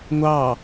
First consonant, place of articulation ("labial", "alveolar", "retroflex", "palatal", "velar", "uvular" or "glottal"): velar